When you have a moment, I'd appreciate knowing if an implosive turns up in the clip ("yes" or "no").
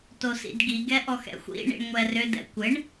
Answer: no